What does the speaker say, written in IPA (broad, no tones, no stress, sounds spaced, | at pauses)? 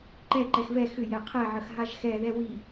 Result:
ǃ ɛ ǃ ɛ x v ɛ x ʏ j ɛ qʰ ɛ ʕ ə x ɦ a ʒ x ɛ ð ɛ w i